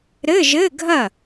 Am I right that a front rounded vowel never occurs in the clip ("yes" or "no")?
yes